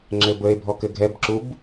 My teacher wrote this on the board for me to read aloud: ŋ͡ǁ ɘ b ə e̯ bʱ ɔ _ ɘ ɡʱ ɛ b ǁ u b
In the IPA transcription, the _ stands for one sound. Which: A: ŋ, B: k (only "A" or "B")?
B